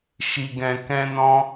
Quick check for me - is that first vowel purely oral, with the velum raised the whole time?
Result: yes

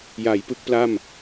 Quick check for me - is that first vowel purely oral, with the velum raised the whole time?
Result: yes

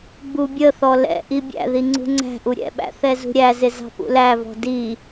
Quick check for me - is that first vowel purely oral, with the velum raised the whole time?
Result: yes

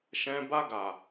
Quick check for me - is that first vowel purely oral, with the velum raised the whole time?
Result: no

